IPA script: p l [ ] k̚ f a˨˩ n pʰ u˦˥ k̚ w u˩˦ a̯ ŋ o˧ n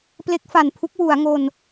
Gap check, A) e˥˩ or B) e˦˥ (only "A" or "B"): B